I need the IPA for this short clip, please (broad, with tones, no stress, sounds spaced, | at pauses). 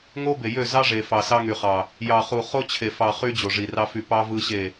ŋ o˦ b e˨ j ø˦˨ z ɑ˦ ʐ e˨ f ɑ˨ s ɑ˦ ŋ y˨ χ ɑ˨ | j ɑ˨ χ u˨ χ o˦ t͡ɕʰ e˨ f ɑ˨ χ y˦ d͡ʑ o˨ ʐ i˨ r ɑ˦ f y˦˨ p ɑ˦ v ɯ˦ ɕ e˦˨